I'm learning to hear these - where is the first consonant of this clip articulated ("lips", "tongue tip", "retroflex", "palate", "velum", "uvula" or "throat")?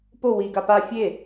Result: lips